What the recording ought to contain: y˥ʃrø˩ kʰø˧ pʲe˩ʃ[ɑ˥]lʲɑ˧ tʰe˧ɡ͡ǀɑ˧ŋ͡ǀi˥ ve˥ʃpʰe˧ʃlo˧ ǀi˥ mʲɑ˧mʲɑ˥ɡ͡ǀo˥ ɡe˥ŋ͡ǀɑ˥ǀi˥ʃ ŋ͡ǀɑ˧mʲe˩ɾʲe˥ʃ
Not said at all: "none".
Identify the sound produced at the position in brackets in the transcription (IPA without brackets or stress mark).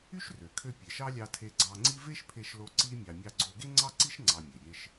ɑ˥